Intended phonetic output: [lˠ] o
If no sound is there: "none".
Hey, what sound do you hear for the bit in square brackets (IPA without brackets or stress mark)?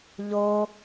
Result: ʎ